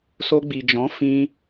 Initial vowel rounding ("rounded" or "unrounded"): rounded